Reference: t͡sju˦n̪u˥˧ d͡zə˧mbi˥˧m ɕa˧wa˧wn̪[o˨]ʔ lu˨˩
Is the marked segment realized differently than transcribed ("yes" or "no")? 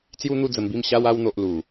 no